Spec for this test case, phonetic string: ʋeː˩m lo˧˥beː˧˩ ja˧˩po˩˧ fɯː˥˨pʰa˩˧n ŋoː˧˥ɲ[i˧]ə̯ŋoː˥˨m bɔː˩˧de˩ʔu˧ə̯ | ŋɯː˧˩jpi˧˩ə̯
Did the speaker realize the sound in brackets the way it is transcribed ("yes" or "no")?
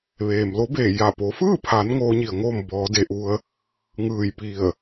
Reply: no